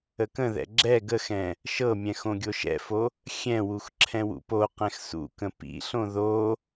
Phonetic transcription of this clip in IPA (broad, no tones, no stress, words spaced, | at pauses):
əkə̃ðɛ̰ ɡ͡ǁɛ ɡəxɛ̃ | ʃɤmʲɛ̃ xõɡʲoʃɛ̰fo | xʲɛ̃wux ǁʰɛ̃wṵpoqɛ̃x sṵkə̃ pḭɬõ ðo